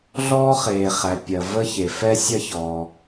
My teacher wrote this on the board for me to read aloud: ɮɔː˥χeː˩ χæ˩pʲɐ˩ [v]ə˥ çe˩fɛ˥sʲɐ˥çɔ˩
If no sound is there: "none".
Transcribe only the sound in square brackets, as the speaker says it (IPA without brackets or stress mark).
v